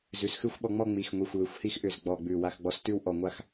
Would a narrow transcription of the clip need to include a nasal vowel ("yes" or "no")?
no